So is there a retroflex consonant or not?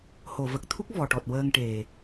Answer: yes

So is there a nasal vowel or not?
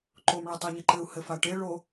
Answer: no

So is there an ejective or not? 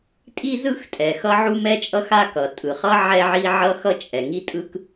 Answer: yes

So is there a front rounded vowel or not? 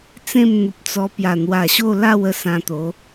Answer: no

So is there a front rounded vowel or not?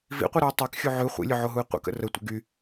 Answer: yes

